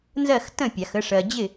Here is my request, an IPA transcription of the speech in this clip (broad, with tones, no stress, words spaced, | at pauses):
nzɜ˥˨x tə̃˥˨pʲa˨˩˦xə˨˦ ʂɜ˨d͡ʑɪ˥˨